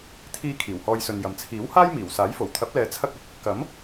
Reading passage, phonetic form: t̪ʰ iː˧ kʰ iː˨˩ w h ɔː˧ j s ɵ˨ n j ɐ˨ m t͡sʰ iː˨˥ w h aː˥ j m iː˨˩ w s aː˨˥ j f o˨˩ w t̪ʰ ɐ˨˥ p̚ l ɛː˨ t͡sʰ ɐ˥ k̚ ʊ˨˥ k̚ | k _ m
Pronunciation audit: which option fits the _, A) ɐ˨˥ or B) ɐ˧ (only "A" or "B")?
A